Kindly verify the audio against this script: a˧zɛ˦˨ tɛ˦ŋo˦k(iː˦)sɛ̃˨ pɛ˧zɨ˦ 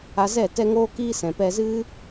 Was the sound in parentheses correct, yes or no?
yes